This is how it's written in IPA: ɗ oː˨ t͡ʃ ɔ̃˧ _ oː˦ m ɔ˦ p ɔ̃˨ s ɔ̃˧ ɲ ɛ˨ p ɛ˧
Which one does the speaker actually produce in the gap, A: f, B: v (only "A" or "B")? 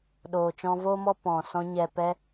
B